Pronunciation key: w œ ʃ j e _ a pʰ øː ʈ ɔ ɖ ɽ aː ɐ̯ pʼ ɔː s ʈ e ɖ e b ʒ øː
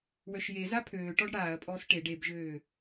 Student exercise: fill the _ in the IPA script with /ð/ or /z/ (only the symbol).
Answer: z